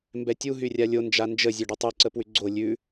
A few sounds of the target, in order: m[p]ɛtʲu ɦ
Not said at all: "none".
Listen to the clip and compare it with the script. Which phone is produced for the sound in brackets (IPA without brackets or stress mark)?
b